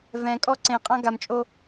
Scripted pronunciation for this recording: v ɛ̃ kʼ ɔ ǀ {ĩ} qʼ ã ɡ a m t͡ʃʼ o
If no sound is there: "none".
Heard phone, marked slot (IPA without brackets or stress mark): ẽ